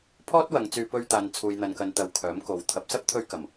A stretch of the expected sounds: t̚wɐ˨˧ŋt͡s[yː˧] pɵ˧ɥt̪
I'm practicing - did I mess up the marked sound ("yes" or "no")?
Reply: no